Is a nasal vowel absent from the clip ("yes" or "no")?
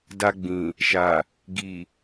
no